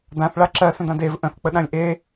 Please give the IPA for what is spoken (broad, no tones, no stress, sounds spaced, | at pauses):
d ã θ ɭ a ǁ ɜ s ə̃ d ã d e v ʔ ə̃ θ k͡p ə ɗ ã lʲ ʔ e